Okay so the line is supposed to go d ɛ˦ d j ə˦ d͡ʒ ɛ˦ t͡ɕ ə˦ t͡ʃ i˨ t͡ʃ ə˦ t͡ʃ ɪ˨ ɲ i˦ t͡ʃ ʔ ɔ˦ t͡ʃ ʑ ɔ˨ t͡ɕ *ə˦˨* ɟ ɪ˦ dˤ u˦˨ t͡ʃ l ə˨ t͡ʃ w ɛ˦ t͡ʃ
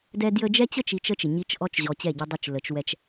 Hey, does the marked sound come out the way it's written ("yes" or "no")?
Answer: no